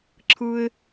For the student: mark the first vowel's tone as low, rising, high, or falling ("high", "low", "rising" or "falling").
high